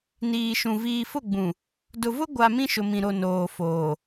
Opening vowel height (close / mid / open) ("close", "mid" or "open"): close